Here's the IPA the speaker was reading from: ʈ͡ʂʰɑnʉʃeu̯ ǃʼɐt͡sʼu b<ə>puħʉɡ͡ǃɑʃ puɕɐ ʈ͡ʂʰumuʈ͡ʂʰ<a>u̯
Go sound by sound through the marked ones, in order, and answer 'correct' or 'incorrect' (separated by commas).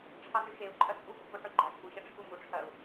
correct, incorrect